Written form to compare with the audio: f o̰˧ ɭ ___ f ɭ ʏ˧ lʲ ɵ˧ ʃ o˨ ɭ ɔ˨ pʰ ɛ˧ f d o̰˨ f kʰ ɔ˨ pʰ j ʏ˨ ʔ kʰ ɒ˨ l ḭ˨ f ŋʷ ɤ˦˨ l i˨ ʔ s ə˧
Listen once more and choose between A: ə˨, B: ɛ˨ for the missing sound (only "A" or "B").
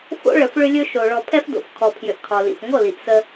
A